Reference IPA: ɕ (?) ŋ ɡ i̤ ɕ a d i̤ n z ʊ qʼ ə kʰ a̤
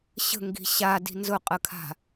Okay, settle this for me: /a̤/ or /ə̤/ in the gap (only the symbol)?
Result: ə̤